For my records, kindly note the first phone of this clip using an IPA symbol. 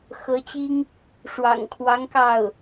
x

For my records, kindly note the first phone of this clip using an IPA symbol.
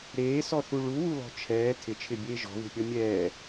ɾ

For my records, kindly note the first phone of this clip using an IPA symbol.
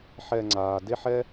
ħ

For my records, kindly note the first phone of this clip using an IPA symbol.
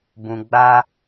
b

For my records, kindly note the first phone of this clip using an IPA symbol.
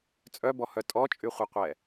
t͡sʼ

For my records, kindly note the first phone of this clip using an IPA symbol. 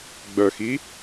ɡ͡b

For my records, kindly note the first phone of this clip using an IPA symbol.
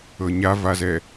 ɤ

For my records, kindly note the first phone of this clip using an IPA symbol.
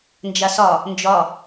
n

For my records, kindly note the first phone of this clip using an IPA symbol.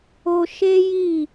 o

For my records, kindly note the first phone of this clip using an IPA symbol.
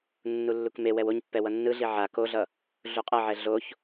nː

